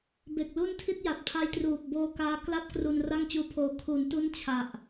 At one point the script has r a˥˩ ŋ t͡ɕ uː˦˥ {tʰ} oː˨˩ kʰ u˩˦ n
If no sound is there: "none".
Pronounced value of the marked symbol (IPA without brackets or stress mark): pʰ